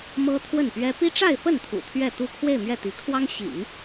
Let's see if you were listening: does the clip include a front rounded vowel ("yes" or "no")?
no